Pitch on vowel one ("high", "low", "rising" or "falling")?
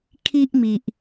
high